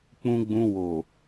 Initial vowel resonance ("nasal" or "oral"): nasal